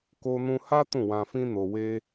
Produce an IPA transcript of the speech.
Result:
k o˧ n ũ˧ h a˦ t ũ˦˨ w ã˧ f ĩ˦ n o˧ w e˦

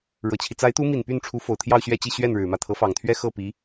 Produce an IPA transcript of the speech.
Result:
ɻ ɤ˨˩ t͡ɕʰ i˦ t͡s a˧˥ ɪ̯ t̪ u˧˥ m i˨˩ n p y˥˩ n ʈ͡ʂʰ u˧˥ f o˨˩ ʊ̯ t̪ʰ j ɑ˥˧ ʊ̯ ɕ ɥ ɛ˥˧ t͡ɕ i˥˧ ɕ ɥ ɛ˥˩ n ɻ ɻ̩˨˩ m ä˥˩ t̪ʰ ɤ˧˥ f ɑ˨˩ ŋ t̪ʰ ɥ ɛ˥ x ɤ˥˩ p i˧˥

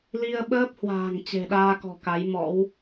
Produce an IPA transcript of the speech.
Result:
l i˧ ə̯ ɓ əː˦˥ p̚ h w a̤ː˨˩ ŋ t͡ɕ e̤˨˩ ɗ aː˧ k ɔ̤˨˩ k a˨˦ j m ɔ̰˧˥ w

